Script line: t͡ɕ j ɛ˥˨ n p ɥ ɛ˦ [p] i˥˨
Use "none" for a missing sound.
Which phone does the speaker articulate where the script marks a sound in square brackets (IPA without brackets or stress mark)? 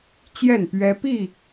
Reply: p